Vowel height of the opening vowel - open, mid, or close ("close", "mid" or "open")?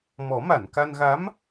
mid